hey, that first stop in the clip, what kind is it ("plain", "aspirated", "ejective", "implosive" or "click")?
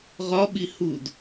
implosive